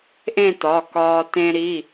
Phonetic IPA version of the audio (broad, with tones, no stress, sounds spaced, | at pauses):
ʔ ẽ˥˧ t ɒ˩˧˩ k ɒː˧ t ẽ˧ ɾ i˩˧˩